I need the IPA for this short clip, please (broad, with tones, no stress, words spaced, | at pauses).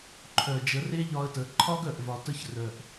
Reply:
ǃʰœ˨ d͡ʒə˨˦re˦ʎɒ˧ə̯tə˨˦ ǃʰɒ˦ɡœ˨ʔ vɒ˨tə˧ç rœ˨ʔ